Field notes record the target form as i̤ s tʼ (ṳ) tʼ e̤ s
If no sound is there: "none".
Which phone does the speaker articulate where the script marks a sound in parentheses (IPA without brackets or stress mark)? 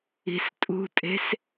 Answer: ṳ